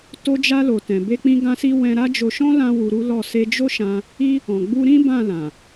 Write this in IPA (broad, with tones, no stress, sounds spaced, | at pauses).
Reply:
t o˧ d͡ʒ a˧ l o˨ t ɛ̃˨ b e˧ k͡p ĩ˧ ɡ ã˧ s i˧ w ɛ̃˦ ɾ a˦ d͡ʒ o˧ ʃ ɔ̃˦ l ã˦ w u˧ ɾ u˦ l ɔ˦˨ s e˧ d͡ʒ o˦ ʃ ã˧ | i˦ | ɔ̃˨ ɡ͡b u˧ ɾ ĩ˦ b ã˦˨ l ã˨